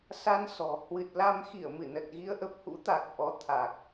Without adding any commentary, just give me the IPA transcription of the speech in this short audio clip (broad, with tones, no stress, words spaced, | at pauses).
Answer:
sa˧nsɔ̤˨˩ hwɨ˨˩t̚la˧m xi˧˩ə̯mɨ˧˩nə˨˩t̚ ɣi˨˦ə̯ʔə˨˩p̚hṵ˧˥t̪a˨˩k̚ ʔɔ˨˦ t̪ʰa˨˩k̚